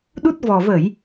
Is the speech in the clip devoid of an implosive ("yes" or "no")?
no